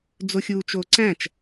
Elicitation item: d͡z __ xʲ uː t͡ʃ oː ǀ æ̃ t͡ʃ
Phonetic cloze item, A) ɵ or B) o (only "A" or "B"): B